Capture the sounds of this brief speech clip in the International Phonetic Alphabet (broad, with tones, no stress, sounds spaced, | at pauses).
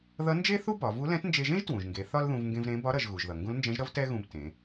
ð ʌ˧˥ n d͡ʒ e˥ θ u˥ b ɒ˩˧ v u˧˥ l ɛ̃˧˥ t n d͡ʒ e˧ ʒ ẽ˥ ʒ t w ũ˩ ʒ ŋ ɡ e˩˧ θ ɒ˥ l ð ũ˧ v ŋ ɡ ẽ˧ v ɾ ẽ˧˥ b ɒ˧˥ ɾ ʌ˩˧ ʒ ɣ u˩ ʒ ð ʌ˩ ŋ ɡ ũ˧˥ l n d͡ʒ ɛ̃˧˥ ʒ ɾ ʌ˥ v t ɛ˥ ɣ ũ˧ b t ẽ˩˧